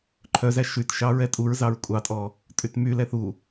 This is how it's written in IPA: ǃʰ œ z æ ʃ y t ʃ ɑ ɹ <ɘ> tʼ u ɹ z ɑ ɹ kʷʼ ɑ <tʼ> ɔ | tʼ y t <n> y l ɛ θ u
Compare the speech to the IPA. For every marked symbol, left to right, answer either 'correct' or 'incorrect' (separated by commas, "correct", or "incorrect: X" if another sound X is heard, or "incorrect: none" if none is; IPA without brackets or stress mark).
incorrect: ɛ, correct, incorrect: m